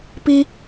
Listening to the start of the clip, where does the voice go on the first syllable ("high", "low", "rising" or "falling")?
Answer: high